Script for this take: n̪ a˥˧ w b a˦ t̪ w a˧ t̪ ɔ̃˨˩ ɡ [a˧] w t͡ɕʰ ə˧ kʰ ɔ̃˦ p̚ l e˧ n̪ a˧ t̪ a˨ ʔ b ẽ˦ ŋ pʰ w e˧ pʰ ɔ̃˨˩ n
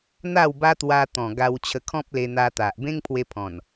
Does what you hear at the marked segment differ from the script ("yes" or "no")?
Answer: no